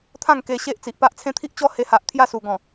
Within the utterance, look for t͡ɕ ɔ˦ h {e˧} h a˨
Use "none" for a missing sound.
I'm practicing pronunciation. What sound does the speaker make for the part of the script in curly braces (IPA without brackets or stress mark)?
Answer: e˧